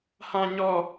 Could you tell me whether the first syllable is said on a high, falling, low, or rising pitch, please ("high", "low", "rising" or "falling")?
high